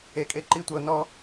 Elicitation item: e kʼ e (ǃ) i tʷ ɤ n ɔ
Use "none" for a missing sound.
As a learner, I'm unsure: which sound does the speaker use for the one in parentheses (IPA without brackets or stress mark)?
ǃ